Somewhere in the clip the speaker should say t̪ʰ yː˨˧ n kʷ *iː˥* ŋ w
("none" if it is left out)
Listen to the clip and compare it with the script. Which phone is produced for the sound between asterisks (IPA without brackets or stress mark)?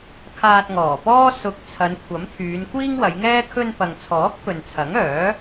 iː˥